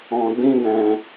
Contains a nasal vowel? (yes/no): yes